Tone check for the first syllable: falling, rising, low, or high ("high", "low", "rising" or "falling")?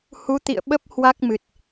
rising